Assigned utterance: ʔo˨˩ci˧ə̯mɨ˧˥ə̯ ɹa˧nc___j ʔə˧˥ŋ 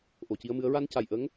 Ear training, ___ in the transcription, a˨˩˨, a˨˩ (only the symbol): a˨˩